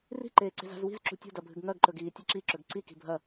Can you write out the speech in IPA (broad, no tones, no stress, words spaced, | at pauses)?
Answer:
ri̤ǃeː ǀe̤za̤zwi̤z ǁṳtʲo̤dɐbʱɨɡ ŋɐɡǃɵɡ iːtʲeǁiǁɵɡ ǀi ki̤bʱɐ